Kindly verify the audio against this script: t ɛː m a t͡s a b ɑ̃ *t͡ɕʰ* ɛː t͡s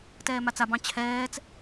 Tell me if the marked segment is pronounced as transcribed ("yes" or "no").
yes